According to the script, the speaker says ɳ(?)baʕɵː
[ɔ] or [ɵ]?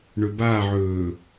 ɵ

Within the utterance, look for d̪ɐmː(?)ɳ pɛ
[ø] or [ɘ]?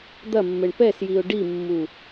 ɘ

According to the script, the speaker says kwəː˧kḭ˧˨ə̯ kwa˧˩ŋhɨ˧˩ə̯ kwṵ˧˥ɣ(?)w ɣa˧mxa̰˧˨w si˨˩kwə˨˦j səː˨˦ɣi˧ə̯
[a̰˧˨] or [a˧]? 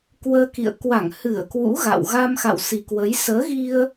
a̰˧˨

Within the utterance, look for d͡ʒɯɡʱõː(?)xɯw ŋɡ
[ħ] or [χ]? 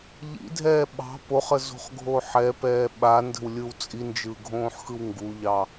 ħ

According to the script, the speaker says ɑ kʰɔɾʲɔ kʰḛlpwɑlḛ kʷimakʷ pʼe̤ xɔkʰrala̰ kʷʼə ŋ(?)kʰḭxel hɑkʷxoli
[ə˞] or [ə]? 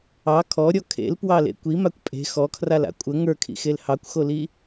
ə˞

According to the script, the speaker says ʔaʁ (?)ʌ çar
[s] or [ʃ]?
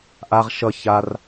ʃ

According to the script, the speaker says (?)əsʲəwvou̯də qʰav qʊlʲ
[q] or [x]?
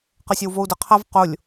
q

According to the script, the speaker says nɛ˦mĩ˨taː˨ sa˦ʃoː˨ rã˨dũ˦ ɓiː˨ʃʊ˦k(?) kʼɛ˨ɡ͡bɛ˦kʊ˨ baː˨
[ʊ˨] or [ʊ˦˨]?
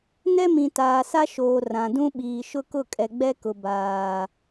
ʊ˦˨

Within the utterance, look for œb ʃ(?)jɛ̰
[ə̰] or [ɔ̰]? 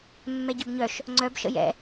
ə̰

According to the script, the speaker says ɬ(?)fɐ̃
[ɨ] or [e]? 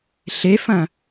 e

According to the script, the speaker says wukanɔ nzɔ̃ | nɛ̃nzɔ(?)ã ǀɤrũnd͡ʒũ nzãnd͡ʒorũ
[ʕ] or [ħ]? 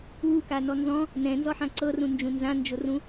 ħ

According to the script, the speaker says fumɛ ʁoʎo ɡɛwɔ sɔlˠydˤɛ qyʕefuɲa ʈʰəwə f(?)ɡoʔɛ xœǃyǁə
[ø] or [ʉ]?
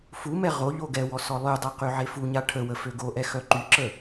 ø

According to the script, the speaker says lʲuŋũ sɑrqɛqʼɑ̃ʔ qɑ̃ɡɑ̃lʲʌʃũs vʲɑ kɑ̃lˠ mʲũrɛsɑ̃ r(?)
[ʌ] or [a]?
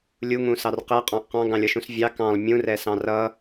ʌ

